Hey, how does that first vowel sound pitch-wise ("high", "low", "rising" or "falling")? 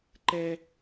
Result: high